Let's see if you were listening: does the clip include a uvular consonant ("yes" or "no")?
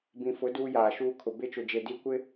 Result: no